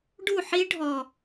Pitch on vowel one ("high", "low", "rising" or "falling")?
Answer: falling